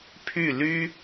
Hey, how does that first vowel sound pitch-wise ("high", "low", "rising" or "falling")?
falling